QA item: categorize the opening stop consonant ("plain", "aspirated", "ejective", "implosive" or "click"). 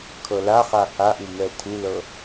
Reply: aspirated